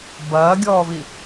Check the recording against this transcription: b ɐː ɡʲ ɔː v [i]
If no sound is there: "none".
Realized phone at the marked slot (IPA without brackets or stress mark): i